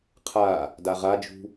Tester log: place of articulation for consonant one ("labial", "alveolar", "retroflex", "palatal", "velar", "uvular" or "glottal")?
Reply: uvular